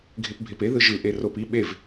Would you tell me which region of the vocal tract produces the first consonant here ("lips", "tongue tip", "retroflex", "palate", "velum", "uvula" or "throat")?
velum